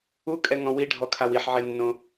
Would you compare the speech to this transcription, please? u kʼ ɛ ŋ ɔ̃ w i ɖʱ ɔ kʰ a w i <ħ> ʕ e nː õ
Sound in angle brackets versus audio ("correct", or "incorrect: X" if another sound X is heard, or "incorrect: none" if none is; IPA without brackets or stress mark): correct